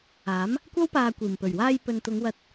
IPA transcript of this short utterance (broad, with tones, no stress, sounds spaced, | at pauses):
aː˨˥ m | kʷ ɐ˥ w p aː˧ kʷ iː˨˩ m p ɵ˨˩ ɥ w aː˧ j p ɵ˨ n t̪ ʊ˨˧ ŋ w ɐ˧ t̚